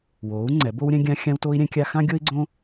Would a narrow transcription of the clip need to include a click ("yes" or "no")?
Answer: yes